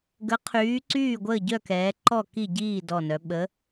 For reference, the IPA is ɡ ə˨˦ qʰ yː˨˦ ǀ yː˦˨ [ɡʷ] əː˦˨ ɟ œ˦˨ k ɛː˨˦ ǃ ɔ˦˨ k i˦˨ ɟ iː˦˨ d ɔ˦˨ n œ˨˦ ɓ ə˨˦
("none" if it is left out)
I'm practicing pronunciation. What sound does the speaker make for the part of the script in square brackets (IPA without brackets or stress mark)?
ɡʷ